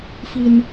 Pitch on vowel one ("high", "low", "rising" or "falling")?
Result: low